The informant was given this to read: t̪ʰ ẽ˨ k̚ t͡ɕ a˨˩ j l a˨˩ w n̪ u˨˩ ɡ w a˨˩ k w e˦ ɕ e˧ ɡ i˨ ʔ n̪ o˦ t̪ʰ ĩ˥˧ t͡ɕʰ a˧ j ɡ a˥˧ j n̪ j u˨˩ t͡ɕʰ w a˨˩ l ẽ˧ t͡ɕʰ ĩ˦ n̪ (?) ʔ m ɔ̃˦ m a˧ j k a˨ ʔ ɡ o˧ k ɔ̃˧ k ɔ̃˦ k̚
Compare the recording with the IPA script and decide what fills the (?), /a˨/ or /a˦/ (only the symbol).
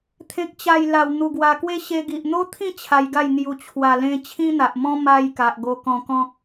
a˨